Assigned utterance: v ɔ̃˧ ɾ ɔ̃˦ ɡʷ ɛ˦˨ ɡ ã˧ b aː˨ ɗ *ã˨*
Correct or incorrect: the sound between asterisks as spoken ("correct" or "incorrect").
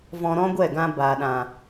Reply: correct